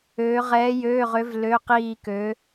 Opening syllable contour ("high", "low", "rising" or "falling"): rising